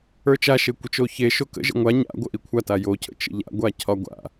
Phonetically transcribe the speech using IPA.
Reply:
ə˞ t͡ʃ a ʃ e kʷ ə t͡ʃ o ç e ʃ o k ə̰ ʒ ə̰ ŋʷ a ɲ a̰ ɡʷ ə ʔ i kʷʰ a t a j o cʰ ə̰ t͡ʃ ə̰ ʎ a̰ ɡʷ a cʰ ɒ ɡʷ a̰

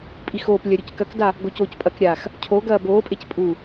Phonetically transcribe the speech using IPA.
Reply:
pʼ i x oː p lʲ ɐ ɾʲ u c k ɐ k d a | ɡ o c oː c pʼ ɐ k ɾʲ aː x | cʰ o ɡ ɐː b oː pʼ e c pʼ u

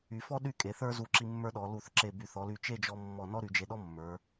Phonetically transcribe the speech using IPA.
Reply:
y˩˧ f ɔ˥ ɗ y˥˧ kʼ e˩˧ θ ə˞˥ z u˧˩ ǁ i˧ mː ə˞˥ ɗ ɔ˩˧ l u˧˩ θ ǁ e˧˩ b y˧˩ θ ɔ˩˧ l y˧˩ t͡ʃ e˥˧ d͡ʒ ɔ˧ mː ɔ˧˩ n ɔ˥ ɾ y˩˧ d͡ʒ e˧ ɗ ɔ˥ mː ə˞˩˧

